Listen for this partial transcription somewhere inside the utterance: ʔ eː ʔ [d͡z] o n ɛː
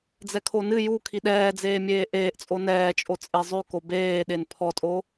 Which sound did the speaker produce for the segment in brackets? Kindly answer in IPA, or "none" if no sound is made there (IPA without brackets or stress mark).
t͡sʼ